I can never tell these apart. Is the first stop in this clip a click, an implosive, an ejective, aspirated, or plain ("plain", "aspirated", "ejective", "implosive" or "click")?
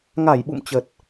implosive